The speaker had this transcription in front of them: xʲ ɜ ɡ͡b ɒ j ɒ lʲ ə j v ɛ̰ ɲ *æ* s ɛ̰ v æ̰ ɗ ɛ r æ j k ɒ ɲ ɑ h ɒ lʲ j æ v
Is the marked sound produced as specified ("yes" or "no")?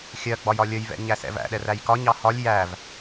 yes